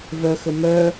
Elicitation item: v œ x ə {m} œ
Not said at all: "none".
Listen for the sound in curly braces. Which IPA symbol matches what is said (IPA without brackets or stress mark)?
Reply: m